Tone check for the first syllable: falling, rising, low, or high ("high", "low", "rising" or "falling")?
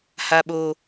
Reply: low